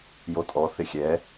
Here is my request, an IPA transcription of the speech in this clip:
jotʼɔ θɪxʲɛ

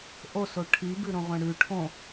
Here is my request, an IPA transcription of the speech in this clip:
ʔoso ʈʰibʉɾõʁʷẽ ɽʉ ʈʰõ

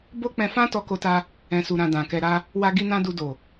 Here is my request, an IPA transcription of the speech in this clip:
bo˦k͡pɛ̃˧fã˦ tɔ˦ko˦ta˦ | ɛ̃˧su˧ɾã˧ dã˨kɛ˧ɾa˦ | wa˦ ɡi˦nã˦ du˧do˨

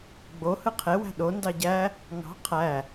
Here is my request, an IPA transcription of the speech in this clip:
ɡ͡bo hɯqʰe wæ̤ɗo ndɑɟæ | ŋɑ̤ qʰæ

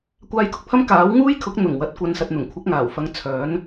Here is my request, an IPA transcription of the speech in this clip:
kʷaː˧jkʊ˨k̚pʰɐ˥m kaː˨˥w ŋuː˥jkʰʊ˨˥k̚ n̪ʊ˨˩ŋwɐ˨t̚kʷɐ˨n sɐ˨t̚n̪ʊ˨˩ŋ kʷʰɐ˨˥k̚ŋaː˨˩wfɐ˨˧ŋ t͡sʰœː˨˥n

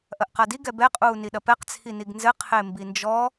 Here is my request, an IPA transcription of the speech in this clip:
ʔɐʔqadi ɡɛbɛ qʼuːniɗɐpɛq t͡sʰiniɡnzɘ qʰembind͡ʒɔ

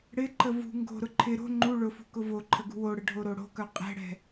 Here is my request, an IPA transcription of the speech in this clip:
ɽɪǃə vṳ ŋɡo̤ɾʊ ǃʰɪ ɾo̤ ŋ͡ǃu ɭʊfṳ kʊvoǃʰə ɡṳwoɽə ɖʱoɾoɽo̤kœ qʼɛ̤ɽɛ̤

